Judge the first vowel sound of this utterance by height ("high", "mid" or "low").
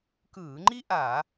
high